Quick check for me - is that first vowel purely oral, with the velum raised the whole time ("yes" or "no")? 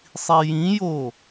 yes